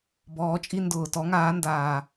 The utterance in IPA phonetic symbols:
b ɔː˨˦ t͡ʃʼ i˦ n d ʊː˨˩ t ɔ˨˦ ŋ aː˨˦ n d aː˨˩

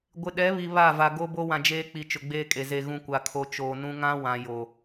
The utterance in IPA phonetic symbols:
ɡʷ ɪ˨ ɗ ɛ˨˦ β i˨ β a˦˨ v a˨ ɡ o˦ b o˦ w ã˨ d͡ʒ eː˦ k͡p i˨ t͡ʃ ʊ˨ ɡ͡b eː˦ kʼ e˨ z e˨ ɣ ũ˨ kʷ a˨ kʰ o˨ t͡ʃ oː˨ n ũ˦ ŋ ã˦ w ã˨ j o˨

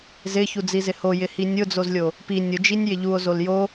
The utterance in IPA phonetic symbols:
z ɪ ç u d͡z i z ɪ h o j ɪ h i nʲ ʊ d͡z o z lʲ o | p i nʲ ʊ d͡ʒ i nʲ j ɪ ʎ u o̯ z o l j o

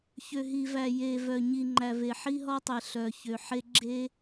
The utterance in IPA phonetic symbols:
ç ø˨ ɦ i˨ v æ˨ j e˨ v œ˨ ɲ i˨ ŋ͡ǃ æ˨ v e˨ ħ i˦ ɦ ɔ˦ tˤ e˨ ɬ œ˨ ç ø˨ ħ e˦ ɡ͡ǁ e˦

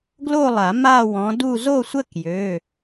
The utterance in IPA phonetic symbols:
ɡ l o˥˧ lˠ a˨˩˦ m a˥˧ w ɔ̃˨˦ d u˥˧ z o˥˧ sʷ ə˥˧ k j ø˩˧˩

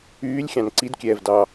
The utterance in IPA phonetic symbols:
yː lʲ xʲ ɑ̃ n ǀ i d kʲ ɛː v d ɑ

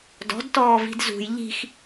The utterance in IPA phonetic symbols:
d ɔ̤ d t ɔː v i̤ d z ṳ j ʎ i̤ x

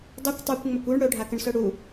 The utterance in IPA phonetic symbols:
dˤ ɵ kʷ tˤ a kʷ ŋ͡m ɵ kʷ u ɳ ɽ ɵ ɖʱ a k ə ɳ s ɵ ɽ u

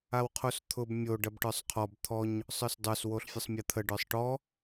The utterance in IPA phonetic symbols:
a w qʰ o s t̪ʰ ʊ b mʲ o ɖ ɐ b ʈ ə˞ sˤ qʰ ɔ b t̪ʰ ɔ ɲ | sˤ ə˞ s dˤ ə˞ s w o ɬ fʲ ə sˤ mʲ ɐ t̪ʰ ə ɖ ə˞ sˤ ʈ ɔ

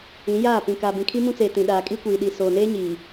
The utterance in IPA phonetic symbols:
ĩ˨˦ j aː˦˨ p ĩ˨ k aː˨ b ĩ˨ kʰ i˦ m ũ˦ t͡s eː˨ t ĩ˨ ɗ aː˨ kʼ i˦ kʷ iː˨ ɗ i˨ s oː˨ n eː˦ ɲ iː˨

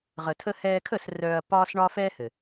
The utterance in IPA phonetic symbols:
ʁ ə˨ tʰ ə˧ h ɛː˧ kʰ ə˦˨ s r œ˧ ɐ̯ p ɒː˦ s ɳ ɒ˦ f ɛː˦ h ɘ˨

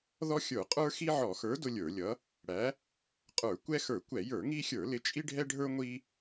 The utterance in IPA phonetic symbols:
ð ɔ˦ xʲ ə˞˧˩˧ qʼ ə˞˦ x i˦ ʕ ɔ˧˩˧ x ə˞˨˥ d ʊ˦ lʲ ə˞˧˩˧ lʲ ʌ˨˥ | ɽ æ˨˥ | qʼ ə˞˧˩˧ kʷ ɛ˦ x ə˞˧˩˧ kʷ ɛ˧˩˧ j ə˞˧˩˧ ŋ i˦ xʲ ə˞˧˩˧ l ɪ˨˥ t͡ʃʼ i˦ ɖʱ ɛ˦ ɖʱ ə˞˦ ŋʷ i˦

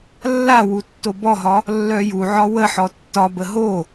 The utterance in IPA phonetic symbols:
lː a w u tː o b ɔ ɦ ɒ | lː œ j u ʕ ɒ w ə ħ ɔ tː ɒ b ə ɦ o

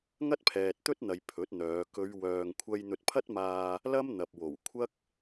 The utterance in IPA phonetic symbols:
ŋ ɐ˥ t̚ pʰ ɛː˨ t̚ t̪ ɵ˥ t̚ n̪ ɐ˨ j pʰ ɵ˨˥ t̚ n̪ œː˨˧ k ɵ˨˧ ɥ w œː˨ ŋ kʷʰ ɐ˧ j n̪ ɵ˧ t̚ pʰ ɐ˥ t̚ m aː˧ | l ɐ˥ m n̪ ɐ˨ p̚ w o˨˩ w kʷʰ ɐ˥ k̚

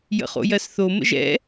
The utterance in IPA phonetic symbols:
j ə̰ χ o̰ j ɜ s θ o m ə̰ ʒ ɛ̰

